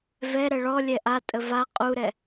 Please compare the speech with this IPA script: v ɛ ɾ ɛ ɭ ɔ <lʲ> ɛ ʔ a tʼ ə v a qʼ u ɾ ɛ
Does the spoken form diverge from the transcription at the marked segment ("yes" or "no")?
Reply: no